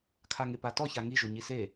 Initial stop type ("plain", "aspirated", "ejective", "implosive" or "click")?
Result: aspirated